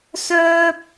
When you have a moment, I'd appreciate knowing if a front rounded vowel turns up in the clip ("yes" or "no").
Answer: yes